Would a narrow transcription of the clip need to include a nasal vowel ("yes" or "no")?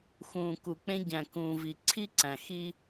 yes